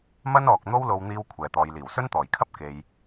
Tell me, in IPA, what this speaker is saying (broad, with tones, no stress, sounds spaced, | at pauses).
m ɐ˥ n ɔː˨ k̚ n̪ o˥ w l o˧ w n̪ iː˧ w kʷʰ ɛː˨ t̪ ɔː˨ j l iː˨˩ w s ɵ˥ n t̪ ɔː˨˩ j kʰ ɐ˥ p̚ k e˨ j